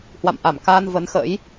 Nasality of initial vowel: oral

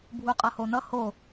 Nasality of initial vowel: oral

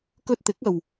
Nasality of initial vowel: oral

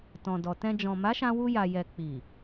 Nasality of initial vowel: nasal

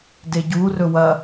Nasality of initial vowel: oral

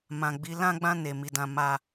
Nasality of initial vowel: nasal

